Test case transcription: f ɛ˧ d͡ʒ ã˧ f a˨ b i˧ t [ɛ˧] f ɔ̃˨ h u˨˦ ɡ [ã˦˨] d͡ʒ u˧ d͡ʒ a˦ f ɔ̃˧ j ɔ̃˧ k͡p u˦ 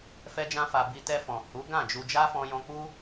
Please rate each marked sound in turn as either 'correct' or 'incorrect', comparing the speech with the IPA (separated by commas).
correct, correct